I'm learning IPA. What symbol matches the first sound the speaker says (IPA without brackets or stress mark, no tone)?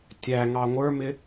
tʲ